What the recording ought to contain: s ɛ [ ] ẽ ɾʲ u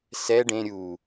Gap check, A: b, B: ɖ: B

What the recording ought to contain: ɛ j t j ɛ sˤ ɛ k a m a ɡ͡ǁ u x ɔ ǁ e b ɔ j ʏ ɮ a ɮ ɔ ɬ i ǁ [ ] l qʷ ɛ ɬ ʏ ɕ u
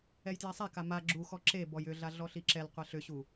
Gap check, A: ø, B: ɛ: B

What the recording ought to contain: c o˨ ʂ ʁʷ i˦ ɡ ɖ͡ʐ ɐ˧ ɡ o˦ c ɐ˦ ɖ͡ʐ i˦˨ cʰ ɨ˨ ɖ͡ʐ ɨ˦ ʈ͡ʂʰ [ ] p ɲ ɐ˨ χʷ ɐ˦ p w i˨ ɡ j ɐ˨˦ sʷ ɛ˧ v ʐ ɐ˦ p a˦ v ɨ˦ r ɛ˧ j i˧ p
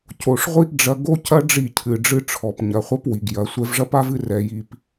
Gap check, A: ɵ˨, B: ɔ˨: B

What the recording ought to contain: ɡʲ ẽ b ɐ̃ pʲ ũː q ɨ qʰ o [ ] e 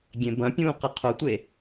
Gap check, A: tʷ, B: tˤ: A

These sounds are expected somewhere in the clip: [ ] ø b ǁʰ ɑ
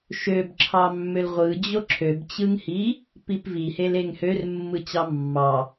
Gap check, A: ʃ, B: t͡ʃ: A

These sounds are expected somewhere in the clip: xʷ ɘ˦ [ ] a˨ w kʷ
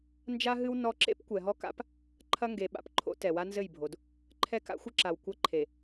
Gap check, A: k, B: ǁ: B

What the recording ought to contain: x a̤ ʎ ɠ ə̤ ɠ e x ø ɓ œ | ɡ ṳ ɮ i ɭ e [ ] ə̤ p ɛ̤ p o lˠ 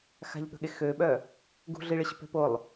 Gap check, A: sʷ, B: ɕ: B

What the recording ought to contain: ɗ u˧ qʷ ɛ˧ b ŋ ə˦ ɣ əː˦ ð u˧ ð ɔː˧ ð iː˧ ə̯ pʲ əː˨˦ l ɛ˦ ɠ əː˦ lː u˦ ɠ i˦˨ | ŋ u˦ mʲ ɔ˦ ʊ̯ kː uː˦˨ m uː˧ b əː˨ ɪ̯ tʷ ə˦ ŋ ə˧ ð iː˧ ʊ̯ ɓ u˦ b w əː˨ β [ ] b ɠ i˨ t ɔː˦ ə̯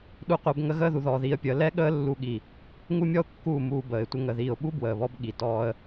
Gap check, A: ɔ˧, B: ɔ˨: A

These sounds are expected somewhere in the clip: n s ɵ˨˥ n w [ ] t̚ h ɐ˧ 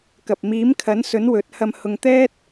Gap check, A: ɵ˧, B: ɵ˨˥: B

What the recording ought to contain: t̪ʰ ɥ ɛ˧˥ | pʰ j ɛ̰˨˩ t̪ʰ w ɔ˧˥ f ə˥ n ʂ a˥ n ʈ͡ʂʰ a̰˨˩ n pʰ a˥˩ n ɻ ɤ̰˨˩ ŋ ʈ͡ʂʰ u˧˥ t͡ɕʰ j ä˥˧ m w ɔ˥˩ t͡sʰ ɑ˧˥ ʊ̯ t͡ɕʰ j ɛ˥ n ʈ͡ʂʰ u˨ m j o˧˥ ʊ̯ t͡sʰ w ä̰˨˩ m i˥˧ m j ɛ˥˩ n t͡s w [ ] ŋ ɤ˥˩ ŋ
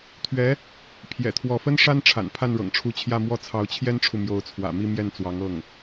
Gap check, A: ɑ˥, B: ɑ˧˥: B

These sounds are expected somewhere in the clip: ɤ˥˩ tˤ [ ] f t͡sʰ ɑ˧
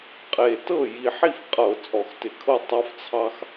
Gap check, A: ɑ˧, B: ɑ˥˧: A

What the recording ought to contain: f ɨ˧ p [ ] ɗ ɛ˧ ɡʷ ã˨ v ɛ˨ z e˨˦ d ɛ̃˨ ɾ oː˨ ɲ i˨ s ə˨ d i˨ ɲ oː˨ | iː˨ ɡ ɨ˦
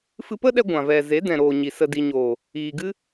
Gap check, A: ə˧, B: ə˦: B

